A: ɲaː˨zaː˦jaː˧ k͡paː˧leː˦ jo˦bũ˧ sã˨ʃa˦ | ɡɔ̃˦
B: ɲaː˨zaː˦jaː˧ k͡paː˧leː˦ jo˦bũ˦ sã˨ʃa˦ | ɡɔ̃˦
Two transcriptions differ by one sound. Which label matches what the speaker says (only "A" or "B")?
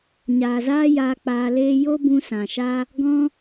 A